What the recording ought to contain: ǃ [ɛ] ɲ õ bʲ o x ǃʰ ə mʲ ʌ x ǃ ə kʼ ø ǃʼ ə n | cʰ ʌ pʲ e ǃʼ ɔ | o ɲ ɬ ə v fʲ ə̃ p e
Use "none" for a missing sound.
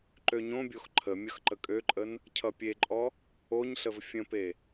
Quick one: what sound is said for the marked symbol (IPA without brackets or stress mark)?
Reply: ø